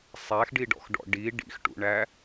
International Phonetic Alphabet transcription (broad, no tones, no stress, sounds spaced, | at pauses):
sˤ æ x ɖ i ɖ ɔ̰ x ɖ ɔ̰ ɖ i ɖ ḭ x ʈ ṵ ɳ æ